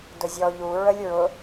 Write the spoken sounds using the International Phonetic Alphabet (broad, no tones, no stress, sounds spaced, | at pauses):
d ʊ zʲ ɔ ʎ u ɹ ə lʲ ɹ ʊ